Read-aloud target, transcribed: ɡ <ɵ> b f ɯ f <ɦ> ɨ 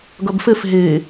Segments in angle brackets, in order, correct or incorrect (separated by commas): incorrect, correct